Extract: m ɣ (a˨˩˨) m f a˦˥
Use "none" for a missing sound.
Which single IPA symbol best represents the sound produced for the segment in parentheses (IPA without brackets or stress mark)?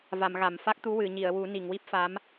a˨˩˨